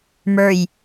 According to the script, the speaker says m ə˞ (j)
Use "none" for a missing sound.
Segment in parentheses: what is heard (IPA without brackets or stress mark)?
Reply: j